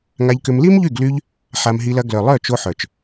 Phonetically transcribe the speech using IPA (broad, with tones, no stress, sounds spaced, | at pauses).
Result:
ŋ a˧ ʎ k ʏ˧ m l i˦ m ʎ y˦˨ ɡ l y˧ ʎ | ħ a˧ m ɦ i˧ l ɐ˧ ɡ l œ˨ lˠ œ˦˨ t͡ʃ o˧ ħ œ˨ t͡ʃ